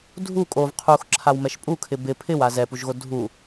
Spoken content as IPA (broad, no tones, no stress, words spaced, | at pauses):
dʱu kʼov qʰuxǁʰawmɛʃ pʼukʰɪ bɪ pʰɪwa zɛpuʒɣo dʱu